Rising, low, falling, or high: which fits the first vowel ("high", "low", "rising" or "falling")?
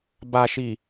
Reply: low